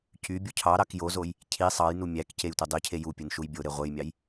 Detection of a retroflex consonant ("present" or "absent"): absent